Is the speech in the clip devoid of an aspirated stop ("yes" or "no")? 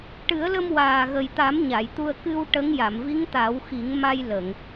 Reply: yes